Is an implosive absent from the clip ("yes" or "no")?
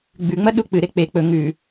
no